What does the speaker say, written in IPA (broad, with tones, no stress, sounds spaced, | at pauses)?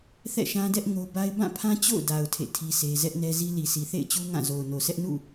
θ ɛ̰˦˨ ʃ ã˦ d ɛ˦ ʔ ŋ o˦ b a˦ ɪ̯ b ã˦˨ pʰ ã˦ t͡ɕ o̰˦˨ ʊ̯ d a˨ ʊ̯ tʰ ḛ˦˨ tʰ i˦ sʰ e˦ z ɛ˦ ʔ n ɛ˦ z i˦ l i˨ s i˨ θ ḛ˦˨ ɪ̯ t͡ɕ u˦ ŋ ã˦˨ z o˨ ʊ̯ n o˨ s ɛ˦ ʔ n ṵ˦˨